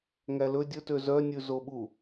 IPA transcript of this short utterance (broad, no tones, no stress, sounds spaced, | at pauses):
ŋ æ l ɵ dʲ ɵ t ø z œ nʲ ʉ z o ɓ u